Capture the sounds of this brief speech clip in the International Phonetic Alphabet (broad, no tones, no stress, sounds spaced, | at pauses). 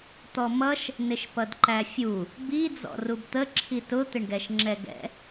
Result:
t̪ ɔ m ʌ ʃ | n ɪ ʃ p ʌ d ǃ æ fʲ u | b i d͡z ɔ̰ r u b t̪ ə ǁʰ i t ʊ t̪ ɪ ɳ ɡ ɛ ʃ ŋ͡ǁ ɛ ɡ ɛ̰